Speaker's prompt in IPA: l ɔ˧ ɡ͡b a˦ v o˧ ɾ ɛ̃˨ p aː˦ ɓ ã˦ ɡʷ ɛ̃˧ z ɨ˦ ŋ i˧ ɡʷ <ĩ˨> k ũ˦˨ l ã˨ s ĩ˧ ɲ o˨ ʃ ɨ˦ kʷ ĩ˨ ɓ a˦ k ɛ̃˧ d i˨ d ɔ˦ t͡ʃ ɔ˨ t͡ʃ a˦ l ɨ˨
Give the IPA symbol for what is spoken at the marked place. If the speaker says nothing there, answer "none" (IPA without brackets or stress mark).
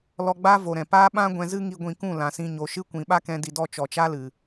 ĩ˨